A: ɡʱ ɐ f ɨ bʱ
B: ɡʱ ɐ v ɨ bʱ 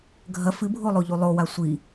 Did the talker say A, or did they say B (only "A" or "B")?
A